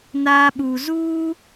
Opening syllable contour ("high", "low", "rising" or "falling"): high